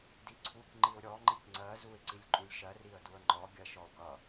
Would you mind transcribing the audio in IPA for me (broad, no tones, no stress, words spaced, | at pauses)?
diǀʰuk ŋ͡ǃiʊ̯ɾʲɔ ŋ͡ǃikŋ͡ǀɜ zuɪ̯ǀilʲǃʼulʲʃɜ riə̯duə̯ŋ͡ǃɔ ɡʲɜʃɔʊ̯kʌ